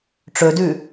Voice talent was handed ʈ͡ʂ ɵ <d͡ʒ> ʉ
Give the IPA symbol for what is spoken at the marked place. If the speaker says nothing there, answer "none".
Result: d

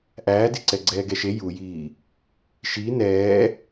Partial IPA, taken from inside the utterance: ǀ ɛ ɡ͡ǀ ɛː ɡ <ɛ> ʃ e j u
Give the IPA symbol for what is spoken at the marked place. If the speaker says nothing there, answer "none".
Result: ɛ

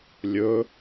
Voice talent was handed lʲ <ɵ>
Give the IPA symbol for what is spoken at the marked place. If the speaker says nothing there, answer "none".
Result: ɵ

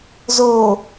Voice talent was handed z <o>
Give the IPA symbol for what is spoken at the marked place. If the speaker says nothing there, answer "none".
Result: o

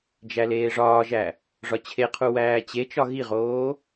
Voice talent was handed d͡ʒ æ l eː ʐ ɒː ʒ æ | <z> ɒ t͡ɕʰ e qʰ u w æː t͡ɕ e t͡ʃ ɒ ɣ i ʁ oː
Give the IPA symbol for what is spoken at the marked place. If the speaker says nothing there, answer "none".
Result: ʐ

